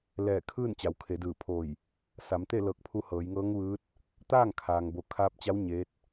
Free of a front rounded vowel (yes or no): yes